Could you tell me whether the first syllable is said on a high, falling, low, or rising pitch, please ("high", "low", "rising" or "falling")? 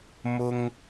high